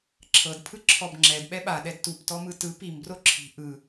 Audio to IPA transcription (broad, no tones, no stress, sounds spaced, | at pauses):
ǁʰ ɤ d pʰ ɯ ǁʰ ɔ b ŋ͡ǁ ɛ d ɓ ɛ ɓ a ɗ ɛ d t u p t ɔ m ɯ t ɯ p i m b r o ǁʰ i̤ ʔ ɯ